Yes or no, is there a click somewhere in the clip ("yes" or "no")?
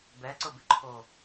yes